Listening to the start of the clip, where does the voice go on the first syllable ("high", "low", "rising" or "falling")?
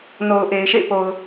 low